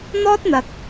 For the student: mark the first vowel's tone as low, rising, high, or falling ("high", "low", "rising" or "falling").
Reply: high